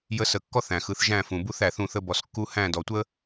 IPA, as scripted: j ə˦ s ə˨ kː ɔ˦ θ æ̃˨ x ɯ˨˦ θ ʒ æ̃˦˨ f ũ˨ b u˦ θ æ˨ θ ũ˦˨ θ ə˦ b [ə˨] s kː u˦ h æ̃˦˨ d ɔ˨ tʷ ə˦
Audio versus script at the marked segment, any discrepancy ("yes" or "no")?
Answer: yes